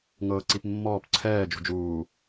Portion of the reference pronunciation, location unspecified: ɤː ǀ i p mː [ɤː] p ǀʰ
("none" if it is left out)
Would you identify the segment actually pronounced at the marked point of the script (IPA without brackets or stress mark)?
ɔː